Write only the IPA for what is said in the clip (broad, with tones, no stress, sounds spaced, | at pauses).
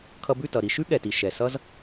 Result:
kʰ ʌ˧ b ʉ˥˩ t ʌ˩ ɾ i˧ ʃ ʉ˥ ɠ ɛ˩ t i˩ ʃ ɛ˩ s ʌ˥ z